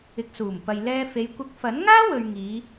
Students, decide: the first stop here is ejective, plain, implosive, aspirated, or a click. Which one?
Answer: plain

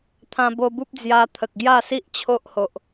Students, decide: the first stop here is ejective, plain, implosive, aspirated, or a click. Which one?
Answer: aspirated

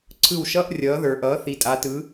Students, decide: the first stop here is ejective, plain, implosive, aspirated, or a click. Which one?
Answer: click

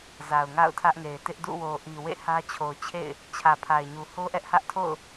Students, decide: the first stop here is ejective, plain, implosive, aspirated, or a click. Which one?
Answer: aspirated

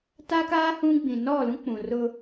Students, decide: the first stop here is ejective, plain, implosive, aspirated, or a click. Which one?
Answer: plain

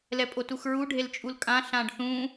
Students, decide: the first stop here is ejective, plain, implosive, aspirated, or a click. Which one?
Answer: ejective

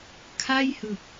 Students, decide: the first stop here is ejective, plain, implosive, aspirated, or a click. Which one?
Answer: aspirated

